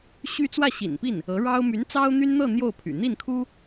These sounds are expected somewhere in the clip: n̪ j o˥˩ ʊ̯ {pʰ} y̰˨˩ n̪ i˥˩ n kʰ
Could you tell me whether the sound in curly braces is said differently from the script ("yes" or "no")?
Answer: no